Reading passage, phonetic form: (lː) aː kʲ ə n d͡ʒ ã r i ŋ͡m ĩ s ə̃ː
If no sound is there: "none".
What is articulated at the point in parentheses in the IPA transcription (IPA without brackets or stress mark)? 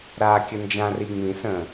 ɾ